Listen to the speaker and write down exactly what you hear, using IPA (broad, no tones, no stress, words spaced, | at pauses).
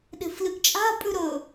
ɗe̤flɨɡt͡ʃʼa̤ pʼʉɾɵ